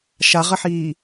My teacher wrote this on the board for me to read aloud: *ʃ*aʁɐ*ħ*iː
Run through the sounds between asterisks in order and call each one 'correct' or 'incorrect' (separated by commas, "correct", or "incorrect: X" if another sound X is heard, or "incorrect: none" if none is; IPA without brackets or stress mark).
correct, correct